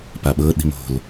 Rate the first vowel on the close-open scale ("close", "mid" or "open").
open